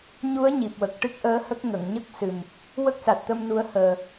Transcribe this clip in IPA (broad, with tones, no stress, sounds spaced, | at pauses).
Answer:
ɲ u˧˥ ə̯ ɲ i˨˩ p̚ w ə˨˩ k̚ ʈ ɨ˦˥ k̚ ʔ əː˧˥ h ə˦˥ k̚ ŋ ə˨˩˨ ŋ ɲ ə˦˥ k̚ s ɨ˨˩ m | w ə˦˥ k̚ s a˨˩ t̚ t̪ ə˧ m n u˧˥ ə̯ h əː˨˩